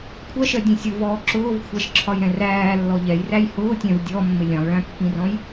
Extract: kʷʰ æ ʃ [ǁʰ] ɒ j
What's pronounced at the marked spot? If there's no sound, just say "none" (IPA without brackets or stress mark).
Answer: ǁʰ